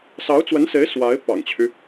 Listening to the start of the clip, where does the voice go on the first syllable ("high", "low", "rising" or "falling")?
rising